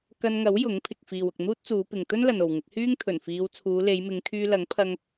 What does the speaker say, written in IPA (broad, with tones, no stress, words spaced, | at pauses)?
kɐ˧nŋɐ˨˥w jʊ˨˥ŋpʰɪ˨k̚ fiː˨wʊ˨k̚ n̪uː˥t̚t͡suː˨˧pɪ˨ŋ t̪ɵ˥nlɐ˨n o˨wŋɪ˨˥k̚ hyː˥ŋt̪ʰɵ˨˩nfiː˨˧w t͡sʰuː˨˧le˨˧jmɪ˨˧ŋkʰyː˧ lɐ˨˥ŋpʰɐ˧ŋ